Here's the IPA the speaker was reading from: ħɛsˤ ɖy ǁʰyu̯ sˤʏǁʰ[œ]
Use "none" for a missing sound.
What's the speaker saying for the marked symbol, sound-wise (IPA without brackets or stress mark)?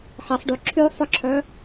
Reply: œ